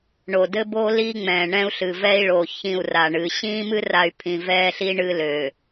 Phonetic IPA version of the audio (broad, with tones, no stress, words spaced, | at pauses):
ɳo˨dɘ˦bo˦ li˦ŋ͡mɛ̃ː˨ɳɛ̃˦u̯ ɬɨ˨vɛː˦i̯ɭoː˨ çĩ˦˨u̯ra˨ɳɨː˨ ɕĩː˦mɨ˦ra˨y̯ pʰĩ˨vɛː˦ɬi˦ ɳɨ˦løː˨